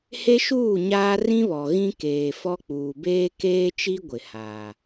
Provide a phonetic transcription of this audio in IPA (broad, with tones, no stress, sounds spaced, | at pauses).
h e˦ ʃ uː˦˨ ɲ aː˦ r ĩ˦ β ɔ˨ ɣ ĩ˦ k eː˨ f ɔ˦ k͡p uː˨ b eː˦ k eː˦ t͡ʃ i˦ ɡʷ ɪ˨ h aː˨